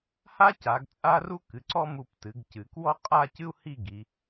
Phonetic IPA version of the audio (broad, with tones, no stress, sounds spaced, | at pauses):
h a˥ c a˩˧ ɡ t͡sʼ a˥ r u˥ k ɨ˩˧ ǀ ɔ˥ m u˧˩ p t ɨ˩˧ ɡ c ɨ˩˧ k w ɔ˥ qʼ a˥˧ c ɨ˥ u̯ h i˥˧ ɡ i˩˧